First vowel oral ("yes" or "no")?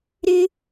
yes